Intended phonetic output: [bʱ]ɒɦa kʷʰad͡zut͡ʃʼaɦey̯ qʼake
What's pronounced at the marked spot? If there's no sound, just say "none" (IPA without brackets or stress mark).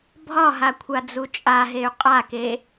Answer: bʱ